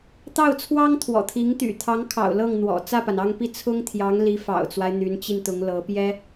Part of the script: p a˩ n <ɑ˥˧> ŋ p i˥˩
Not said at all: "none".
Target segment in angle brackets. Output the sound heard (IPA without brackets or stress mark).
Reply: ɑ˥˧